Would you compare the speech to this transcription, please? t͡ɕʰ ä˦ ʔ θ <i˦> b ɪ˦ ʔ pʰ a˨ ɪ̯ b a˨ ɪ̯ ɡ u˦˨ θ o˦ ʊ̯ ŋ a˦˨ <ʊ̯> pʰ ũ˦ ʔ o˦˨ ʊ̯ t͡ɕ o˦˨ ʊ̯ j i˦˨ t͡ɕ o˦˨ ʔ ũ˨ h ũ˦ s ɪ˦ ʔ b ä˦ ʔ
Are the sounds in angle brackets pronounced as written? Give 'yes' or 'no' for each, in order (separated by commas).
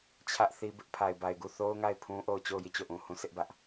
yes, no